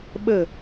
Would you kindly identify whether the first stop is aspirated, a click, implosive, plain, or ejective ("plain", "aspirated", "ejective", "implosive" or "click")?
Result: implosive